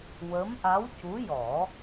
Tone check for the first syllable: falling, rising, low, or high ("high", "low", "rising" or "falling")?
rising